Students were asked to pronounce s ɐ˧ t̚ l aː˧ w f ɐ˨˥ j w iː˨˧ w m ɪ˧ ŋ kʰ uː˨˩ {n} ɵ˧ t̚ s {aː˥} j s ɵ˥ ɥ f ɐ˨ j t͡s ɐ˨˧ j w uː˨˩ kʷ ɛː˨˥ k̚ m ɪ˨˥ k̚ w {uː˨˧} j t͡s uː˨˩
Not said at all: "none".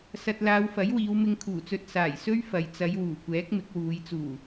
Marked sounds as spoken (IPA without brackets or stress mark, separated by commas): t͡s, aː˨˩, uː˨˧